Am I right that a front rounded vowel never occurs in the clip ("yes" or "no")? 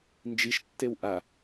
yes